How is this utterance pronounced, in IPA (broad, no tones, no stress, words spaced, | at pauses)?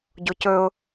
ɟocɵʊ̯